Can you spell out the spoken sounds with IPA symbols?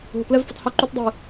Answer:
ɦ ʊ˨ k l ɛ˦ v f ʏ˨˦ tˤ h ʏ˧ ǃ ʏ˧ t dˤ i˨

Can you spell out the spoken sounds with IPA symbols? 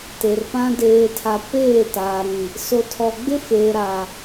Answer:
t e˨ r p ã˨ d eː˨ tʰ a˨ p eː˦˨ t aː˨ ɾ ĩ˨ | s o˨ tʰ ɔ˨ ɡ͡b ɪ˦ f eː˨ ɾ a˨

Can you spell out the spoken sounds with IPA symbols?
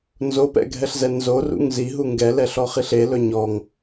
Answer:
n z o p ɛ̰ ɡʱ ɛ ɬ z ɛ n z o r ṵ ŋ z i ɦ u ŋ ɡ ɛ l ɛ ɬ ɔ χ i ɬ e l ɵ ɲ ɔ ŋ

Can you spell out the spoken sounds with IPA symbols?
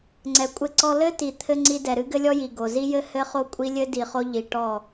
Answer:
ŋ͡ǀ ɛ˨ kʷʼ ɘ˦ ǀ ɔ˦ l ɘ˦ t i˨ t̪ʰ ɘ˦ ŋ͡ǀ i˦ d ɛ˨ ɾ ɨ˦ ɡ ɘ˦ lʲ ɔ˦ j i˨ ɡ o˨ z i˦ j ɘ˦ h ɘ˦ χ o˦ kʷʼ i˦ lʲ ɘ˦ d i˨ χ o˦ ʎ i˨ ʈ ɔ˦˨

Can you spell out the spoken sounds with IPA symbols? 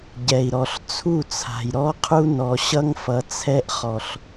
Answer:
ɟ ɛ˨ i̯ ɾ ɔ˨ ɬ t͡sʰ u˦˨ t͡sʰ a̤˨ j ɾ ɔ˦ qʰ u˦ n ɔ˨ ɕ ʌ˦ ŋ f ʌ˨ t͡sʰ ɛ˦ ʔ χ ɔ˨ ɬ

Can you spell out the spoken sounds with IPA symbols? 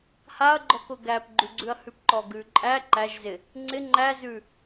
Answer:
h a ɐ̯ ɡ͡ǃ ɔ k ʊ ɡ æ p ɡ͡ǃ ʉ ɡ͡ǀ ʉ ɐ̯ h ʉ p ǃ ɔ ɡ ʉ ǃʼ æ ǃ æ ʒ z ɪ | ŋ͡ǀ ɪ ŋ͡ǃ æ z ʉ

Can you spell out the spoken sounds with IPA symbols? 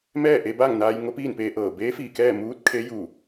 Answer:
m ɛː˥˨ ʔ e˧ b aː˥˨ ŋ n aː˧ j ŋ o˧˥ p iː˥˨ n p eː˧ ʔ ɤː˧˩ b eː˧˥ f iː˧˩ k ɛː˥˨ m uː˧˥ t̚ kʰ e˧˥ j uː˧˩

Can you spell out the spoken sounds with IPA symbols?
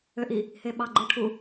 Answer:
ø ʔ i | h e ɓ ɑ ɡ͡ǃ ɯ ʈʰ u

